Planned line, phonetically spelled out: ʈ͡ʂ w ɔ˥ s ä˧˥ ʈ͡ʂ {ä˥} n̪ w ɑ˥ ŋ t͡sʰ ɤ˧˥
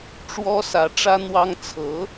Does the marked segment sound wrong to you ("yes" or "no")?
no